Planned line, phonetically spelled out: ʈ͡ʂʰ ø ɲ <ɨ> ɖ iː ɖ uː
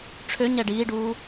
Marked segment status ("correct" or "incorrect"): incorrect